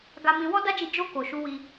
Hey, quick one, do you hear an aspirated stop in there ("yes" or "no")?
no